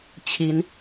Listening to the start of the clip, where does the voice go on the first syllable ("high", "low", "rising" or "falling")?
rising